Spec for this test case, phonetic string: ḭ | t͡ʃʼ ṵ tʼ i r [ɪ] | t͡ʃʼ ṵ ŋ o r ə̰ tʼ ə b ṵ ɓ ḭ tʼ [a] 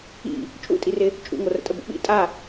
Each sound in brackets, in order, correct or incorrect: correct, correct

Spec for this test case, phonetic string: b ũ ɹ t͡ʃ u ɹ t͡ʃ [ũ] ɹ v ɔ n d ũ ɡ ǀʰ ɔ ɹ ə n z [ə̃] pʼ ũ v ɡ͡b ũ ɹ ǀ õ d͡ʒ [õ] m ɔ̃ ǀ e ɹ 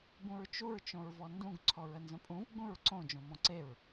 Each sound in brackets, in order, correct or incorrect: incorrect: õ, correct, correct

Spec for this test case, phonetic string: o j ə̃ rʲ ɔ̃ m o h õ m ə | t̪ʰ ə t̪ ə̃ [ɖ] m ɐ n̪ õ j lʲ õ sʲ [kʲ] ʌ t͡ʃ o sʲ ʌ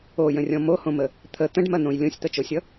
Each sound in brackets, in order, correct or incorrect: correct, incorrect: t̪

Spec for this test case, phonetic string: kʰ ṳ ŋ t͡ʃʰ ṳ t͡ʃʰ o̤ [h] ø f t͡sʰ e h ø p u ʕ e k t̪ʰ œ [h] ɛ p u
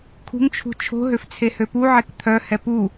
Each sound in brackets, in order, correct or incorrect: incorrect: ɦ, correct

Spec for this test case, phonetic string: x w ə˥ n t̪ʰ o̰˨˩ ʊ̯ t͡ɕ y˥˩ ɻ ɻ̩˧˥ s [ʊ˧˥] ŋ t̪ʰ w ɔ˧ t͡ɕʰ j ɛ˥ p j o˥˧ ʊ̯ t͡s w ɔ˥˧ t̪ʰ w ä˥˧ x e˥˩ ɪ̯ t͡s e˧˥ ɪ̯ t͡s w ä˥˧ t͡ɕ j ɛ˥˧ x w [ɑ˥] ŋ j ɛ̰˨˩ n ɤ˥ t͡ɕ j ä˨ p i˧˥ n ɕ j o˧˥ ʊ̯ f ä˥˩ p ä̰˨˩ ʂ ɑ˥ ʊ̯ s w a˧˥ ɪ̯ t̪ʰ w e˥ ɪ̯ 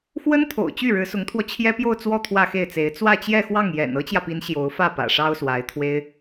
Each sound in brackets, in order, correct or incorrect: correct, incorrect: ɑ˥˩

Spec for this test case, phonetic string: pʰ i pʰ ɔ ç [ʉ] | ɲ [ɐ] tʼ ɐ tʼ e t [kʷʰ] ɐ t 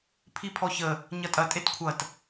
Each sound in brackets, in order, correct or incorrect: incorrect: ə, correct, correct

